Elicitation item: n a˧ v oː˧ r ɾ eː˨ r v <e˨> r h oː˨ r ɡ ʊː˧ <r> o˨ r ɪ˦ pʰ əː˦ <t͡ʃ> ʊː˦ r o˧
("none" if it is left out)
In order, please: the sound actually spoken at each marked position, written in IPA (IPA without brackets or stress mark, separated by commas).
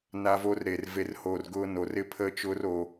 e˨, n, t͡ʃ